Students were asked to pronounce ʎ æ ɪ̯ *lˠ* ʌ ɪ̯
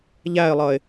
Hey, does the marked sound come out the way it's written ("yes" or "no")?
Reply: yes